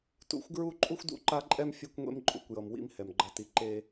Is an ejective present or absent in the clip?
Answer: present